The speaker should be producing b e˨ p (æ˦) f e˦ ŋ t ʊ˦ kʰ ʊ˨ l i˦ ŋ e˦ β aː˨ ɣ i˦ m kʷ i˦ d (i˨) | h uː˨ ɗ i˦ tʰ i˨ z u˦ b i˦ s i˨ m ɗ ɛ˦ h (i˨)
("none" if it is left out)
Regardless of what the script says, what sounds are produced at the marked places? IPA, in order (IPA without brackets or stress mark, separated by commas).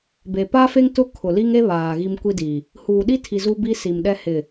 a˦, i˨, ɪ˨